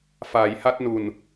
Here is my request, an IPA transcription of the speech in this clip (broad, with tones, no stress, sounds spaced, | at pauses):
f aː˩˦ j h a˦˥ t̚ n u˨˩ n